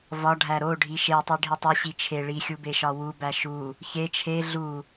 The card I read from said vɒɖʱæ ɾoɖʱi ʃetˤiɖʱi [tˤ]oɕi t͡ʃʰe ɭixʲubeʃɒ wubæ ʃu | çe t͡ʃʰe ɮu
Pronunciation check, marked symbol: correct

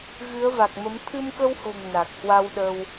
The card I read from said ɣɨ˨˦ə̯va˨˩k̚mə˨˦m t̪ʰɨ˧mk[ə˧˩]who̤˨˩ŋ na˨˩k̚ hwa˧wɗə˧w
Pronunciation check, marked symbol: incorrect: ə˧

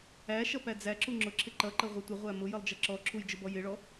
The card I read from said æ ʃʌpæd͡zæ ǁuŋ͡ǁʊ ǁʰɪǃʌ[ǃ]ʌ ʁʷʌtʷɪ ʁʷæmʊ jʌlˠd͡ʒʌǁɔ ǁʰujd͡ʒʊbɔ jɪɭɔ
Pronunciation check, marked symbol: correct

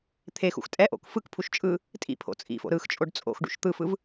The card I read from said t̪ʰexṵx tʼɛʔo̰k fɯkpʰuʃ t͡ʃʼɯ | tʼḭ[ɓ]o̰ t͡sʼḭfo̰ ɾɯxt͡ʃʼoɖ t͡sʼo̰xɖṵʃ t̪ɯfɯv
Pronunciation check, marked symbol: incorrect: pʰ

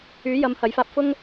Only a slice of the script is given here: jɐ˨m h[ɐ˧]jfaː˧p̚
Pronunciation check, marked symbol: incorrect: ɐ˨˥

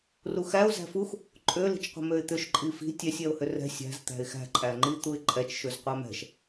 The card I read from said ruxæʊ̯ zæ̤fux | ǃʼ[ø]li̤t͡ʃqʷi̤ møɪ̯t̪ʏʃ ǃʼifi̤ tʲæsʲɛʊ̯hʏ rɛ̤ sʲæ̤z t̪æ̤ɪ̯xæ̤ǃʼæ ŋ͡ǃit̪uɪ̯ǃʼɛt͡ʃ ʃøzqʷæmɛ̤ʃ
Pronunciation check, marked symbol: correct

